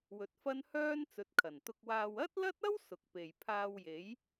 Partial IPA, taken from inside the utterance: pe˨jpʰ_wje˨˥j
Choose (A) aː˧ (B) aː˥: A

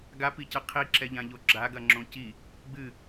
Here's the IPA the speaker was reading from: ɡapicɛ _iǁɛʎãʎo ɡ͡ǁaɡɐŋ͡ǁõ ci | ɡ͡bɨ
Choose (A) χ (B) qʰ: B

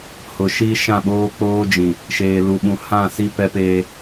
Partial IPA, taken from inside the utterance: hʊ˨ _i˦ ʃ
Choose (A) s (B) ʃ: B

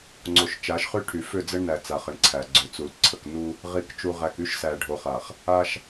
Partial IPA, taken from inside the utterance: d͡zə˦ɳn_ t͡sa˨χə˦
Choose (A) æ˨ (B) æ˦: A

